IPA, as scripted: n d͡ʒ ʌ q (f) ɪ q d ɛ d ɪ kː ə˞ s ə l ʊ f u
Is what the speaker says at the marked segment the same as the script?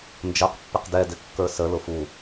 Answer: no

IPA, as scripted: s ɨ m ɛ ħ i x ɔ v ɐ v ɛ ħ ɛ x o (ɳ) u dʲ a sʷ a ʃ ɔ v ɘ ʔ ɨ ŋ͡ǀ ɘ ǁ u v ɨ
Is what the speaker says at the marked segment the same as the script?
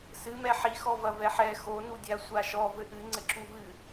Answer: no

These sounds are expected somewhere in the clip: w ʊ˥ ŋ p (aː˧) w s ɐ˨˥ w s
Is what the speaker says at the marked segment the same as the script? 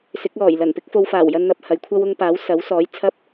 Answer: no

